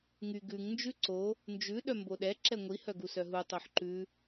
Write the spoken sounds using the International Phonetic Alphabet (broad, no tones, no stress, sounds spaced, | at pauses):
ŋ y ɡ ʉ ŋ n d͡ʒ ʉ ǀ o | n d͡ʒ ʉ ɗ œ m b o ɗ ɛ ǁ ɛ ŋʷ i h œ ɡ u s œ ɦ u tˤ o ħ ǃ ʉ